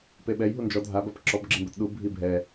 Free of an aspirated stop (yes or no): yes